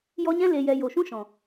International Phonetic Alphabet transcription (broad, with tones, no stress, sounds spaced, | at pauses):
j ɔ˧ ɲ ɛ̃˦ l e˨ j ɛ˨ j o˨ ʃ ũ˦ ʃ ɔ̃˨